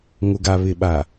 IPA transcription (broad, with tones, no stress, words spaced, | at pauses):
ŋʊ˨ɡa˨ βɪ˨ɓa˨